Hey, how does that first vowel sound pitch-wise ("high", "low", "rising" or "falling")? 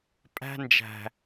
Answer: high